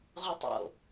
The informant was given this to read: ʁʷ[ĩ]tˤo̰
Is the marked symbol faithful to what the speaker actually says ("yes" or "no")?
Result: no